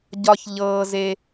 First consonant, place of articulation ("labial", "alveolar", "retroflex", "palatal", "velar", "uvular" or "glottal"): palatal